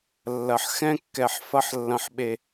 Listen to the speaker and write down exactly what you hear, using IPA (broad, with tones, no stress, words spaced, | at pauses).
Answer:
lːɐ˨ħ xɛ̃˦kːɛ˨ħ fɐ˦ħlːɐ̃˨ħɓe˨